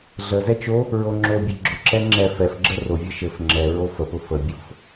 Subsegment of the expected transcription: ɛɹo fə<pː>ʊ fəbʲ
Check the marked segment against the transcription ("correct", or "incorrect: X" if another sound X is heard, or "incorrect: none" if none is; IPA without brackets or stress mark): incorrect: p